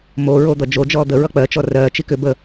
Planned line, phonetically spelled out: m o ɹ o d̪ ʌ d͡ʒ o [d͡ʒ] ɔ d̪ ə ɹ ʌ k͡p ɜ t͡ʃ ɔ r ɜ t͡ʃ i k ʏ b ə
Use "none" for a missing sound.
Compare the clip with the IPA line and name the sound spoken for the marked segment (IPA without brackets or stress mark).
d͡ʒ